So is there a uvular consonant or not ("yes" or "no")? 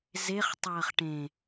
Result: yes